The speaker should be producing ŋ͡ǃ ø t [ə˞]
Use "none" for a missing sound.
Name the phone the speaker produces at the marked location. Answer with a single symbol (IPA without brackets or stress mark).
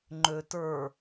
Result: ə˞